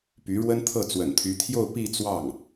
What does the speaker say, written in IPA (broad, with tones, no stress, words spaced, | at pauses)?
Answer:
py˧˥ɻwə˥nt̪ʰɤ˥˩ t͡swə̰˨˩nt̪ʰy˧˥t̪ʰjo˥˧ʊ̯ pi˥˧t͡swɑ˥˩ŋ